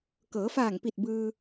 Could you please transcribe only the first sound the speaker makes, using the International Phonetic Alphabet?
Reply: k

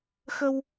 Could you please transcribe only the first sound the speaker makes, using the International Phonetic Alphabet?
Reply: x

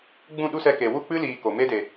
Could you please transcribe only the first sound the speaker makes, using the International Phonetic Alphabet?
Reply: ɡ͡b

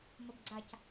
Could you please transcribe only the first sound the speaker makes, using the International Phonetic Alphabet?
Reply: m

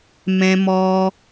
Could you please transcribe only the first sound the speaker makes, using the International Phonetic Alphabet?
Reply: m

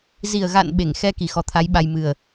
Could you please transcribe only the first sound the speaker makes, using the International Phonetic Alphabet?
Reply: z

